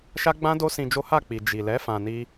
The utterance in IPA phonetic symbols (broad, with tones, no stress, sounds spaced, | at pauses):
ʃ a˦ ɡ͡b ã˦ d o˦ s ĩ˧ d͡ʒ o˦ h a˦˨ k͡p i˨ d͡ʒ i˨ l ɛ˨˦ f ã˧ n i˦